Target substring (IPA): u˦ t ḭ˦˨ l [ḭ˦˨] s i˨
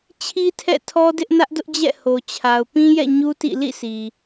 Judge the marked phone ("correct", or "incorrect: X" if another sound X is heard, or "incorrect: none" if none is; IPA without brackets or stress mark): correct